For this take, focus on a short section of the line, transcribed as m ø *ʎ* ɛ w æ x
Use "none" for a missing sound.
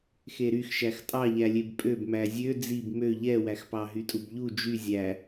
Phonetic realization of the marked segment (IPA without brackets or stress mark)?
ʎ